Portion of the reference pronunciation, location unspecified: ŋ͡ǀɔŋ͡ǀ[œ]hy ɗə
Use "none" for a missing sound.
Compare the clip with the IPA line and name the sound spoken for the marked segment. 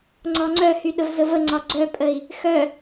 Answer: œ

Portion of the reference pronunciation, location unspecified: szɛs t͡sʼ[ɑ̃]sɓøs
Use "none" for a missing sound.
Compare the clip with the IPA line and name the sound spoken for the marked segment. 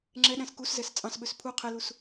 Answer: ɑ̃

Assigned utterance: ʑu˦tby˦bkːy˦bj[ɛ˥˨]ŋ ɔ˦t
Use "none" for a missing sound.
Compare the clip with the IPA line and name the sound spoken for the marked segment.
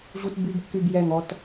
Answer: ɛ˥˨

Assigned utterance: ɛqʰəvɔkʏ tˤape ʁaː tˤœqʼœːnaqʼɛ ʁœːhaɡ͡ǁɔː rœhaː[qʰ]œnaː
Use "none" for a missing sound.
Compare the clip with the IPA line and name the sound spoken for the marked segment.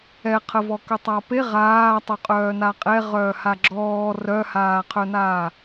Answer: qʰ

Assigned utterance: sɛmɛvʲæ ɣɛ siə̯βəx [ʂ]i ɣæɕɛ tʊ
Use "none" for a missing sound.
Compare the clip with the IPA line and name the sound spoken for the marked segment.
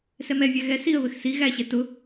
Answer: s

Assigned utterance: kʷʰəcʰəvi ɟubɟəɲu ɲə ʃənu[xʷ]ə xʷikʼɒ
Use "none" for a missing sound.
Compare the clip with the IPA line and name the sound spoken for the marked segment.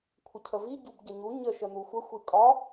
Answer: xʷ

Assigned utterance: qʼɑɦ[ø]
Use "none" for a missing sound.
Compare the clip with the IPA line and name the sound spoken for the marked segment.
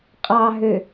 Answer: ø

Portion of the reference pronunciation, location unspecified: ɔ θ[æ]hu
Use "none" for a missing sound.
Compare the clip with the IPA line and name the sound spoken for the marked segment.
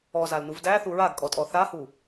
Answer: a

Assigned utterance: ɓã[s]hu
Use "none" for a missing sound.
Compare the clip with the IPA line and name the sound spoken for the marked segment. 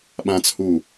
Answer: t͡s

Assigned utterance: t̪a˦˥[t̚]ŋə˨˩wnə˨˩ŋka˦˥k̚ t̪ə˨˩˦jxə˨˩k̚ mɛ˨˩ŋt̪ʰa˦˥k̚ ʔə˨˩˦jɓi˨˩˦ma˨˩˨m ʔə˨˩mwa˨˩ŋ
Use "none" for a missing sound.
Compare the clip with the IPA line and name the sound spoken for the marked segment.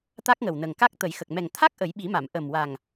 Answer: k̚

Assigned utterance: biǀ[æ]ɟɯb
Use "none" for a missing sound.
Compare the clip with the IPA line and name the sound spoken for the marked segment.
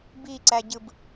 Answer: æ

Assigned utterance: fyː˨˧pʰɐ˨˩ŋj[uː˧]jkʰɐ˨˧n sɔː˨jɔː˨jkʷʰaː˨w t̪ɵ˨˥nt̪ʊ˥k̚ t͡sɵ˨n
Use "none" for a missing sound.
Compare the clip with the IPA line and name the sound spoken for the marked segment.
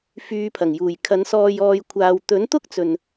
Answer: uː˨˩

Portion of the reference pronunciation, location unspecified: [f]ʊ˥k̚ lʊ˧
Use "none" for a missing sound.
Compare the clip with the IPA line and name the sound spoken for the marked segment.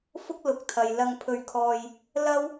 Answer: f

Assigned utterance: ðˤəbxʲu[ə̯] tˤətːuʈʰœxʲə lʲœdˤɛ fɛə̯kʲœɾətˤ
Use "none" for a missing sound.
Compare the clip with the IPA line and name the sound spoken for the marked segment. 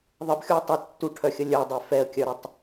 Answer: ə̯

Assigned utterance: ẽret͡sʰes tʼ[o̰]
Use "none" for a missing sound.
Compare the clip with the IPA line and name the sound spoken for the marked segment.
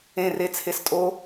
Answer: o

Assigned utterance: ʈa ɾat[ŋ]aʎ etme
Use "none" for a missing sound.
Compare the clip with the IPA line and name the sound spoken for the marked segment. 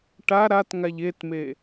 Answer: ŋ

